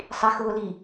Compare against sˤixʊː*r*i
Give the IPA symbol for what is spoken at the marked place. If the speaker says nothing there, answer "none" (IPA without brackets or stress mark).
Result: l